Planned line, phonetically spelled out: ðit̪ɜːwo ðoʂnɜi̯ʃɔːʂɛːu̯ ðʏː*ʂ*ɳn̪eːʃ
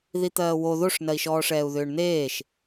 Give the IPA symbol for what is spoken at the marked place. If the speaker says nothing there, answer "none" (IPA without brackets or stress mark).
none